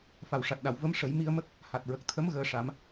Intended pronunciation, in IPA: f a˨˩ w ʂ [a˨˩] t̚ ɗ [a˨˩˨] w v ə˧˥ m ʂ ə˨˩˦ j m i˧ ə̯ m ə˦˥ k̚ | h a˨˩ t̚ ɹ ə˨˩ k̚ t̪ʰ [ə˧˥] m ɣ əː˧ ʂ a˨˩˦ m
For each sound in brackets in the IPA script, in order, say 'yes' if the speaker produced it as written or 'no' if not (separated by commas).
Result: yes, yes, yes